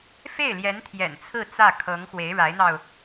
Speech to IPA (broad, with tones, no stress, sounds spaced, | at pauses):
f e˥˩ ɪ̯ l j ɛ˧˥ n t̪ʰ j ɛ̰˨˩ n t͡sʰ ɹ̩˥˧ t͡s ä˥˩ kʰ ɤ˧˥ ŋ x w e˧˥ ɪ̯ ɻ a˧˥ ɪ̯ n̪ ɑ˧ ʊ̯